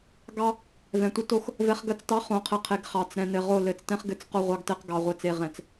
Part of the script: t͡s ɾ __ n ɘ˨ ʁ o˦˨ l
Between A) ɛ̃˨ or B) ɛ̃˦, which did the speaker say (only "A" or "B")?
A